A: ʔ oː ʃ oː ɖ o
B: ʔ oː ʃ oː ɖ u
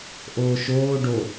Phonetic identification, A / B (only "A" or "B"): A